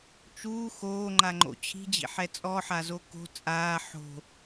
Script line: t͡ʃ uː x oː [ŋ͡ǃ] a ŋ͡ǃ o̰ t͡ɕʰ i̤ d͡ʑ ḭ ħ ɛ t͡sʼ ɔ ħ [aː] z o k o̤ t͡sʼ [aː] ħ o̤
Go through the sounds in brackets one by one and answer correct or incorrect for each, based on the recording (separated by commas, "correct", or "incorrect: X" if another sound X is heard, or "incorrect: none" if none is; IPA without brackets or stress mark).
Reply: correct, incorrect: a, correct